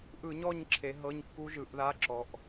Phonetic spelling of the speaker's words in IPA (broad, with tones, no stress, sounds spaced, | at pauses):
ʔ ɯ˧˩˧ ɲ ɔ˦˨ ɲ ǁʰ e˩˧ ɦ ɤ˧˥˧ ɲ kː u˦˥ ʒ ɯ˩˧ ʔ ð a˧˥˧ ǁ ɔ˩˧ ʔ